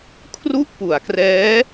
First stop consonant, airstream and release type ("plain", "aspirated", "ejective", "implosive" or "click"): aspirated